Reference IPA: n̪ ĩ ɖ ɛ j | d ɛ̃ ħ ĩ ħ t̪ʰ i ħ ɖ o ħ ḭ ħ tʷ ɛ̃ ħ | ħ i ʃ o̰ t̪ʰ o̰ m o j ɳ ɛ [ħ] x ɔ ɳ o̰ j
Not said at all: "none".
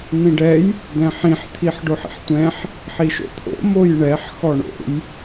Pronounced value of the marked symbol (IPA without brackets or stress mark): ħ